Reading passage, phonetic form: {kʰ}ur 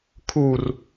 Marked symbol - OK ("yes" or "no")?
yes